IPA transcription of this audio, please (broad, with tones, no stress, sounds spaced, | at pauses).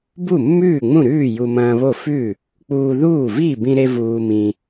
b u˥˩ mː ʉː˥˩ ŋ͡m ũ˥˩ ɾ ʉː˥˩ j u˧ m ɐ̃ː˧ β o˥˩ f ʉ˥˩ | k͡p uː˧ ð uː˥˩ v i˥˩ b ĩ˧ ɾ e˧ v uː˧ m ĩ˧